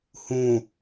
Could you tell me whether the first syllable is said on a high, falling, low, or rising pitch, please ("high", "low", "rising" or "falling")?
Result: low